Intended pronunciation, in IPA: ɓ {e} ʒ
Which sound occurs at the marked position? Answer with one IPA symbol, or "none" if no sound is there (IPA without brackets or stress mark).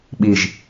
i